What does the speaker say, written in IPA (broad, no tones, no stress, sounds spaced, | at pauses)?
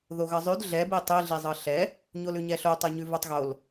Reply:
ð o ɣ ʌ zˤ ʉ d ɮ ɛ b i tˤ i ɮ i zˤ ɤ ɬ ɛ | ɲ o l ʉ ɲ ɛ ɬ o tˤ ɤ ɲ ʉ v o tˤ ɣ o l